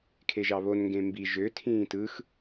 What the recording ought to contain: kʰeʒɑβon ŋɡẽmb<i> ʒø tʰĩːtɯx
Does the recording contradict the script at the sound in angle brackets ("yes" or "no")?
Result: no